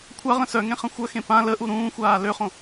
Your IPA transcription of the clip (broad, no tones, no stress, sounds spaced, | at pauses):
kʷʰ a ʁ ə̃ s œ ŋ ẽ χ ə̃ xʷ œ x ẽ p ã l ə ʔ u ɾ ũː xʷ aː l ø χ õ